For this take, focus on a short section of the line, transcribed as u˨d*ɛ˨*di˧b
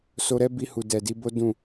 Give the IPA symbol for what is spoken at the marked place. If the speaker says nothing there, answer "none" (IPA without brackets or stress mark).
ɛ˨